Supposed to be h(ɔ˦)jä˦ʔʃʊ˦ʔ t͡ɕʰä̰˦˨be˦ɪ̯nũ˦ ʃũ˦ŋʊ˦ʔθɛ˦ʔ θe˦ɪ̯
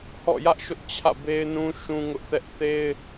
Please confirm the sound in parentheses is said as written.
no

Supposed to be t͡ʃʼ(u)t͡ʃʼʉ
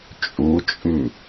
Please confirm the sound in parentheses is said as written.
yes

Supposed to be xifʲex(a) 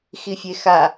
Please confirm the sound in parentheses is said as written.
yes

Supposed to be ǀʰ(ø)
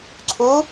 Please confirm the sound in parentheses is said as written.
no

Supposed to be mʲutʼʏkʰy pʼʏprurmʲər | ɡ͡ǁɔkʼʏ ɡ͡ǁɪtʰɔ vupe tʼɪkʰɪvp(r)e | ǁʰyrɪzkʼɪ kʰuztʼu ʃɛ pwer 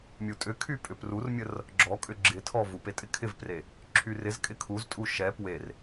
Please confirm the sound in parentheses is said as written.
yes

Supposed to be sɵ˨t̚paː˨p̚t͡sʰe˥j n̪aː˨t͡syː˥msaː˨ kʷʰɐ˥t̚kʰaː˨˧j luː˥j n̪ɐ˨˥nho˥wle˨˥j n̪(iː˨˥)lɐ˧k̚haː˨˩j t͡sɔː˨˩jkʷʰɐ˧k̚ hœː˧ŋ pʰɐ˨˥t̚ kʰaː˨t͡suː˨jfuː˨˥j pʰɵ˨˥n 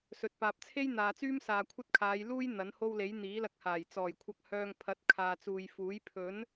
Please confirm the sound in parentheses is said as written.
yes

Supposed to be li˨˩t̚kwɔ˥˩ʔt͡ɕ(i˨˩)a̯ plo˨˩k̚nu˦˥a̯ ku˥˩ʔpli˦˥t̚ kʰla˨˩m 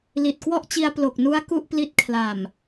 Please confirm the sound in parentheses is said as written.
no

